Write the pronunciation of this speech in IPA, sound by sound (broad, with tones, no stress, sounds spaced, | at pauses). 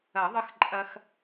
ɐ˨˩˦ ðˤ ə˦ x ǃʼ ɐ˦ x